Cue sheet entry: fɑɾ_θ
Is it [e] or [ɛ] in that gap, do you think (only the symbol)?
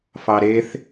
e